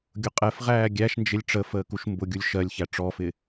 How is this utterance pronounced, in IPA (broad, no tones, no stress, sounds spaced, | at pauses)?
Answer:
ɡʲ ʊ qʼ ɛ f ʁ æː ɡʲ æ ʃ n d͡ʒ ɪ lʲ ʈ͡ʂ ə f əː k u ʃ m b ʊ ɡʲ u lʲ ʃ ɜ lʲ ç æ ʈ͡ʂ ɔ f ɪ